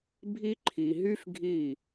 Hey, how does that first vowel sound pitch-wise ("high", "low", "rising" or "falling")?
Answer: high